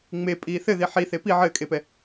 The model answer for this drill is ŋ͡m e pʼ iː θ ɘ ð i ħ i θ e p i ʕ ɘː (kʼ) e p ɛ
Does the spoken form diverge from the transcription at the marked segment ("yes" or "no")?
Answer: no